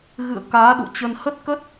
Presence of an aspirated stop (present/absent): absent